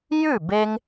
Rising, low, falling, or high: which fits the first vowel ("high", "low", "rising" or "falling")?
falling